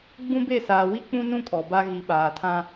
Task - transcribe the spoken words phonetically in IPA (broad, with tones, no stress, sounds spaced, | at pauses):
ɡ͡b ũ˦ b e˦˨ s aː˨ w i˦ k͡p ũ˦ n ũ˦ kʼ ɔ˨ b a˦ ɣ i˨ ɓ aː˨ tʰ ã˦